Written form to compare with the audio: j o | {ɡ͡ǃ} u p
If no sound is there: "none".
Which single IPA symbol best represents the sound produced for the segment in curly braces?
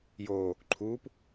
ǃʰ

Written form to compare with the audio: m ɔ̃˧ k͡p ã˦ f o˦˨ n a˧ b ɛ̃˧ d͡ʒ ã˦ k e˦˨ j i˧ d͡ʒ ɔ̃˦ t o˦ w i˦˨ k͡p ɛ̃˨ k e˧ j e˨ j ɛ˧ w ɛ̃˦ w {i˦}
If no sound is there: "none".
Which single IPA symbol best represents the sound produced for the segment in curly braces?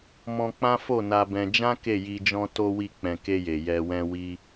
i˦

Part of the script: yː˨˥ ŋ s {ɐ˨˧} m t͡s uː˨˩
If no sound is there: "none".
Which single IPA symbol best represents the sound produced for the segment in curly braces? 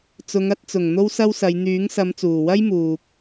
ɐ˨˧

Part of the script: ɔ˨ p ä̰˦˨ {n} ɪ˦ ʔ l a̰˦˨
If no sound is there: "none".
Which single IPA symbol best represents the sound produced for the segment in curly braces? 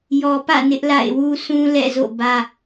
n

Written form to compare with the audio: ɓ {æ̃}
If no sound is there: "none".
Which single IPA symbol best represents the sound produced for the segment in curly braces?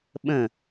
ə̃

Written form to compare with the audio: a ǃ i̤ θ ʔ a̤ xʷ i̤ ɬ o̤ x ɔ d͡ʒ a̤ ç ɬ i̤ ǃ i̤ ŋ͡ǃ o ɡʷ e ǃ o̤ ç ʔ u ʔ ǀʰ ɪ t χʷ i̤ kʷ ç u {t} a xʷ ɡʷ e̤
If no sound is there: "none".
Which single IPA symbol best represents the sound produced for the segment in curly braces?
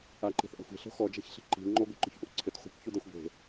d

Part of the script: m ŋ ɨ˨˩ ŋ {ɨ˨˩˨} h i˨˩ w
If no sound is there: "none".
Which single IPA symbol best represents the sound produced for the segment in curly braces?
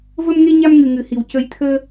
ɨ˨˩˦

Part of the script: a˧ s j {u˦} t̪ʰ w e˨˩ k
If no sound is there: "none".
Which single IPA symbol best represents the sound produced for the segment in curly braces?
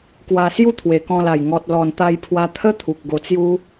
u˥˧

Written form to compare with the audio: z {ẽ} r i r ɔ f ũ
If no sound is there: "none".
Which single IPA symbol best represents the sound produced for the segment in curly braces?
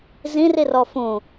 ĩ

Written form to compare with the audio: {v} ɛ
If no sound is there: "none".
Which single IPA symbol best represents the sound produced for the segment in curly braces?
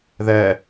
ð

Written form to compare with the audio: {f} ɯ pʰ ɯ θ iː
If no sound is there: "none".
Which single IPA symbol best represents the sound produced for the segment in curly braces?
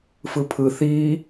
f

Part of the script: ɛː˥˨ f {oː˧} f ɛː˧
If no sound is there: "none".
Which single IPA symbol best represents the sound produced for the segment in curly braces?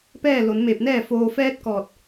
oː˩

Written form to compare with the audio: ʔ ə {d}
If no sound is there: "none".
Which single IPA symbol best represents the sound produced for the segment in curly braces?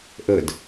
d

